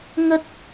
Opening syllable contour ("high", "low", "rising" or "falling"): high